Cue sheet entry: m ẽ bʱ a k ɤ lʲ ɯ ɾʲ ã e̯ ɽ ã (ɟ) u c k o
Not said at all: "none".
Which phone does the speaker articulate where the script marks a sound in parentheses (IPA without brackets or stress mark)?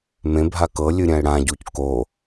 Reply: ɟ